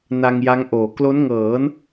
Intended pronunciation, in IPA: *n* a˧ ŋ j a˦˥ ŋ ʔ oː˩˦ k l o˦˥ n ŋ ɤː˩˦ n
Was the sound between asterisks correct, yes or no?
yes